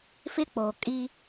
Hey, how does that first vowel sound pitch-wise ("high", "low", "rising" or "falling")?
high